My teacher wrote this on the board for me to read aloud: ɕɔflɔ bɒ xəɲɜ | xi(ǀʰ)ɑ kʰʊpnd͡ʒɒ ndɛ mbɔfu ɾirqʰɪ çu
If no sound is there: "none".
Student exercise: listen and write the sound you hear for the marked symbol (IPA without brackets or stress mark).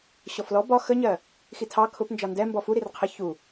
tʰ